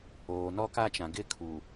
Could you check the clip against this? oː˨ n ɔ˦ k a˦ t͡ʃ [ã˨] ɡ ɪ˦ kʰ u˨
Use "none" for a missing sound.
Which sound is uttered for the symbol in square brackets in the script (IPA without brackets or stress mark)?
ã˨